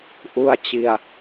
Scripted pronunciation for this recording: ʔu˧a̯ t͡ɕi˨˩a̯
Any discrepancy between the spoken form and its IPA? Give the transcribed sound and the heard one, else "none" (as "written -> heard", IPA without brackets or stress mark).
none